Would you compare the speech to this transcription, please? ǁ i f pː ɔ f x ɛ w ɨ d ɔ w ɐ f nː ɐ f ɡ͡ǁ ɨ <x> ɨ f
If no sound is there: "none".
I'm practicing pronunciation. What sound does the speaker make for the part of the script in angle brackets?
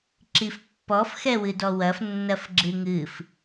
ŋ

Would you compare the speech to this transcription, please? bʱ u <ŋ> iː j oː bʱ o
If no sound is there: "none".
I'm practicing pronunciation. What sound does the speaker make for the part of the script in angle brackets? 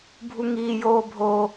ŋ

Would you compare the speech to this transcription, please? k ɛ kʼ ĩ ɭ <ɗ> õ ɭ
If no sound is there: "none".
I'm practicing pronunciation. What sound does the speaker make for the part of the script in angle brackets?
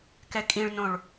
n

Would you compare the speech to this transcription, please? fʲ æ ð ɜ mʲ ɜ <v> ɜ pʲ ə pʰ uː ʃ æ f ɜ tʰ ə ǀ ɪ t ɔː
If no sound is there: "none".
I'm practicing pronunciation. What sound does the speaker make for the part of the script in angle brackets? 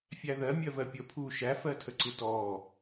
v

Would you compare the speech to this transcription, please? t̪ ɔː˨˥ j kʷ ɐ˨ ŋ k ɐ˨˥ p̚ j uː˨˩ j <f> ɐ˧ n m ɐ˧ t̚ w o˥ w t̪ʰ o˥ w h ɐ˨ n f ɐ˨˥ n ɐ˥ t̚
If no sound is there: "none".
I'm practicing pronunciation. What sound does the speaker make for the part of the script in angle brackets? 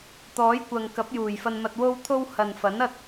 f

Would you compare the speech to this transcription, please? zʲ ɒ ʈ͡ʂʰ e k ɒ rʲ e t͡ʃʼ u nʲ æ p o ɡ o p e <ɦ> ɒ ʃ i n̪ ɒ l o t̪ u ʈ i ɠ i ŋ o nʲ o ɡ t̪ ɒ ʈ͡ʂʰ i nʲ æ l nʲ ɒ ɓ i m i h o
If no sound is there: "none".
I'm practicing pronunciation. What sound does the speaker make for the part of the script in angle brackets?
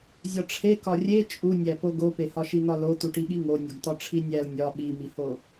h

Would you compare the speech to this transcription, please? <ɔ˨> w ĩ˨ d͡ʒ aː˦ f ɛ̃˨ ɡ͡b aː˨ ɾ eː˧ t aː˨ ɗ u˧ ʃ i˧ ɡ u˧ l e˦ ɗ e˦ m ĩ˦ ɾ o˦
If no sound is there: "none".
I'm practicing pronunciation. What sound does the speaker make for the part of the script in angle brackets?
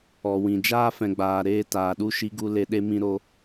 ɔ˨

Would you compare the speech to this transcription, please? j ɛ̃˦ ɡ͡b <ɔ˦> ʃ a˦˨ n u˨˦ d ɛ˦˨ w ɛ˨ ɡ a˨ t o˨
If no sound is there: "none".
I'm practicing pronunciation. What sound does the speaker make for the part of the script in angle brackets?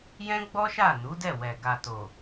ɔ˦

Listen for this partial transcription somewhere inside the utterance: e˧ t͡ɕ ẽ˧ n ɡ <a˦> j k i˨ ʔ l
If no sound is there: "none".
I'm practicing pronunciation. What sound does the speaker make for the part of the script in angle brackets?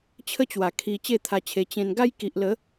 a˦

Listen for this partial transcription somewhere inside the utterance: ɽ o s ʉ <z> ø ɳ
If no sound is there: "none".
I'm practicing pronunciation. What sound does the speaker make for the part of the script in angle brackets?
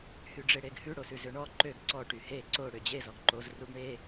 z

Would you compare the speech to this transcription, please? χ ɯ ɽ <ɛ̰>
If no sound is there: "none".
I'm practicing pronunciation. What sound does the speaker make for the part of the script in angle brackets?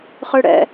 ɛ̰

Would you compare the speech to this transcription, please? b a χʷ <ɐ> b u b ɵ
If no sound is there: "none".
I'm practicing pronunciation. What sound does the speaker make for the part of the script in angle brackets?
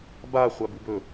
a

